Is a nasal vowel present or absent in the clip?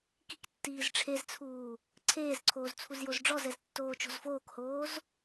absent